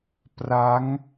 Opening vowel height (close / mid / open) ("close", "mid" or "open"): open